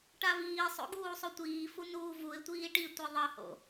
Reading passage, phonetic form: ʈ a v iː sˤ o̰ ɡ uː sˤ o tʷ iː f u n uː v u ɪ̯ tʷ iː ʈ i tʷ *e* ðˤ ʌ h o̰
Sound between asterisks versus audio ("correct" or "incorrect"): correct